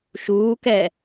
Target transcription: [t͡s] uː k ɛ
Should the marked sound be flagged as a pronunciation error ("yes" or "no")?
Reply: yes